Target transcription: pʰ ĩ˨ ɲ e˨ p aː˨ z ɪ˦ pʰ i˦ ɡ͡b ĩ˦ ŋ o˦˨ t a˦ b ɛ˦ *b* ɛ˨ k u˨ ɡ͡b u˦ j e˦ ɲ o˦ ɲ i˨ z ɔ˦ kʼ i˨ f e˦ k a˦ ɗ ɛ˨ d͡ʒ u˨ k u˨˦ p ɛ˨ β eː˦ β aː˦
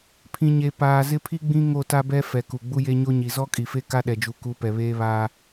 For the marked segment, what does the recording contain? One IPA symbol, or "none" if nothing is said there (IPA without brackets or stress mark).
f